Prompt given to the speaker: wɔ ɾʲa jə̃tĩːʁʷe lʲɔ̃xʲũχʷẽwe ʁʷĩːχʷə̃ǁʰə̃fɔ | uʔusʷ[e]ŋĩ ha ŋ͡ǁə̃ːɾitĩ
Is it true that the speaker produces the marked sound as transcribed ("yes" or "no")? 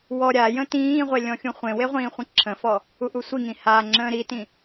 no